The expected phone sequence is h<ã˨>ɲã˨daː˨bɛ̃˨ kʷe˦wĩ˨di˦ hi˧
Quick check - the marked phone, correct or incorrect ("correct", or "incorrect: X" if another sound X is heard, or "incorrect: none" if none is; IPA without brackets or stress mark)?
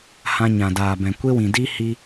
incorrect: ã˧